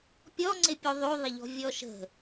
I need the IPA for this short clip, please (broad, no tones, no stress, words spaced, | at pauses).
pʲɔŋ͡ǀɪ pʲuðˤyðˤɪʎɔ̤ vʲɔʃə̤